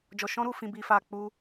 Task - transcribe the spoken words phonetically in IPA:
d͡ʒ ɔ˧ ʃ ɔ̃˦ ɾ u˧ f ĩ˧ b i˧ f a˧ k͡p u˦

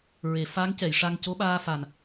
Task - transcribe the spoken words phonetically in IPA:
ɹ e˨˩˨ f a˧˥ ŋ c ɛ˨˩˨ j ʂ a˧ ŋ c o˧˥ ɓ aː˧ f a˨˩ n

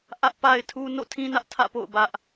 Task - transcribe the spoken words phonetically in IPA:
ʔ ä˦ ʔ p a˦ ɪ̯ tʰ u˦ n o̰˦˨ tʰ ĩ˦ n ä˦ ʔ tʰ ä̰˦˨ p o̰˦˨ ʊ̯ b ä˦ ʔ

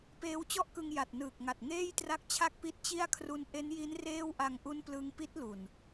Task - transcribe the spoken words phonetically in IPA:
p eː˦˥ w t͡ɕ ɔ˥˩ ʔ k ɯ˧ ŋ j a˨˩ t̚ n ɯː˨˩ k̚ ŋ a˨˩ t̚ ŋ eː˥˩ j t r a˦˥ k̚ t͡ɕʰ a˥˩ k̚ p i˦˥ t̚ t͡ɕ i˥˩ a̯ kʰ r u˦˥ n ʔ e˦˥ n j i˦˥ n r eː˥˩ w ʔ a˧ ŋ ʔ u˦˥ n p l ɯ˧ ŋ p i˦˥ t̚ l u˨˩ n

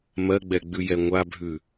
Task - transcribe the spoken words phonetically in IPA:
m ɜ ɡ͡b ɛ ɡ͡b ʉ j ɛ ŋʷ a bʱ ʉ

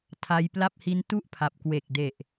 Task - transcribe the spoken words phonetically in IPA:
tʰ a˦˥ j p l a˥˩ p̚ h i˦˥ n t u˥˩ ʔ pʰ a˨˩ p̚ k w e˨˩ k̚ d e˨˩ ʔ

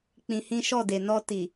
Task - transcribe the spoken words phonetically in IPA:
k͡p ĩ˧ h ĩ˦ ʃ ɔ˦˨ d e˨ n ɔ˧ t i˨

